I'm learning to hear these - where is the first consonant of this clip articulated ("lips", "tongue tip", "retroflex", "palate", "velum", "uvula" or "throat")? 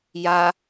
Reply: palate